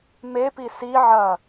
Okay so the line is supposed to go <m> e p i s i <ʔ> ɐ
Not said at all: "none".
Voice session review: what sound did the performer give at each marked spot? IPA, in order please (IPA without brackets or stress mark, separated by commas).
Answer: m, ʕ